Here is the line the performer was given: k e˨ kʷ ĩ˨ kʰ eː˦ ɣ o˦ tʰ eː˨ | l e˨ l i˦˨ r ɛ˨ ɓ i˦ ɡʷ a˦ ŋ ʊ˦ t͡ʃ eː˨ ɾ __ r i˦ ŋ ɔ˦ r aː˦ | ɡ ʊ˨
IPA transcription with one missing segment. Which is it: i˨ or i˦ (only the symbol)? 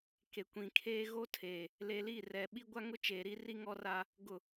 i˦